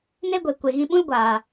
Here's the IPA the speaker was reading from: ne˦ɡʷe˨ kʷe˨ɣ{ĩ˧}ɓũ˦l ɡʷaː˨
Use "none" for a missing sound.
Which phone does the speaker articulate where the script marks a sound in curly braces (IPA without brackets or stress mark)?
ĩ˧